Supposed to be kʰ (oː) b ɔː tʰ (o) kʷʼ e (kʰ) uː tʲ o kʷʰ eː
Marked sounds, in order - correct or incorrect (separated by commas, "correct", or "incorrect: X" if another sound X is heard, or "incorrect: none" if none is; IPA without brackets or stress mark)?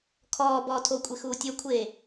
incorrect: ɔː, correct, incorrect: x